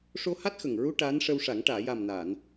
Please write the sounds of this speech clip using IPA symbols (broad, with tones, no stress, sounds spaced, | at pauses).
ʂ o˧ h a˦˥ t̚ x ə˨˩ ŋ ɹ u˧ ʈ aː˧˥ n ʂ ə˧ w ʂ a˨˩˦ ŋ ʈ aː˨˩˨ j a˨˩ m n a˨˩˨ n